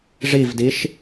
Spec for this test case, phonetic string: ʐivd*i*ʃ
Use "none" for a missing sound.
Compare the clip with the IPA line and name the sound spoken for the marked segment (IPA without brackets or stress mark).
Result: i